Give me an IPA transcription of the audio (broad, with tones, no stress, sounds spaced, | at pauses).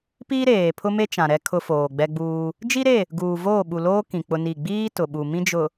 p iː˦ ɾ eː˨ pʰ ʊ˦ m e˦ t͡ʃ ã˨ ɾ ɛ˦ kʰ ʊ˦ f oː˨ ɡ͡b ɛ˦ ɡ͡b uː˦ | d͡ʒ i˦ ɾ e˦˨ | ɡ uː˨ v oː˦˨ ɓ u˨ l oː˦ k ĩ˨ k͡p ʊ˦ n i˦˨ ɡ͡b iː˦ t ʊ˨ ɓ u˨ m ĩ˦ d͡ʒ ʊ˨